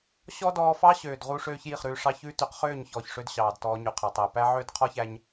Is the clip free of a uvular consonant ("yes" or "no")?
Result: no